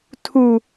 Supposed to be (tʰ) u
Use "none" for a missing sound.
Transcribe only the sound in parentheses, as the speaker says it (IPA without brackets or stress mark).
tʰ